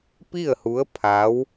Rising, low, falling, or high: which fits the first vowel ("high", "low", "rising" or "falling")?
falling